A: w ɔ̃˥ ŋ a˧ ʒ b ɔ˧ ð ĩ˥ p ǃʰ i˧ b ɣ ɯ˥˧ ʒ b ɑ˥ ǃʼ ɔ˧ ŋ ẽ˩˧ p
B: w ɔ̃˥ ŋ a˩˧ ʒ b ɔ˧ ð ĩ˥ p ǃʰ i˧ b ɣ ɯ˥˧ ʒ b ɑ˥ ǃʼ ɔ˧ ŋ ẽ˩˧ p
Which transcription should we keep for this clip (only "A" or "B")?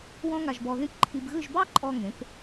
A